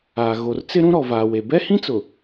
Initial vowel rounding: unrounded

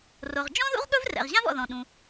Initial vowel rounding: rounded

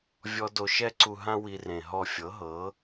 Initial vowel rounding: rounded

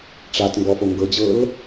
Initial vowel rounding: unrounded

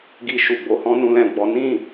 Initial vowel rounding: unrounded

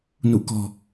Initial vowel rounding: rounded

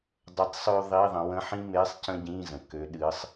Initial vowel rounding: unrounded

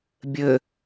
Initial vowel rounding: unrounded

